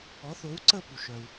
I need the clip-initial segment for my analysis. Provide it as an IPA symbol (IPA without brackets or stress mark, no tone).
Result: ɔ